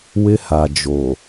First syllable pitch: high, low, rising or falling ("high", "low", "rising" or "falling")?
high